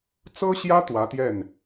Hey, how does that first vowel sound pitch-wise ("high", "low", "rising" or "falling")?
high